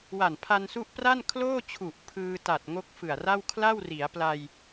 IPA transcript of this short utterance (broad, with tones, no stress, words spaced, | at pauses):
wa˨˩npʰa˧nsu˦˥ʔpra˥˩n kʰloː˥˩t͡ɕʰu˨˩ʔ pʰɯː˧ta˨˩t̚ ŋo˦˥k̚fɯ˨˩a̯ra˥˩w kʰla˥˩wri˩˦a̯pla˧j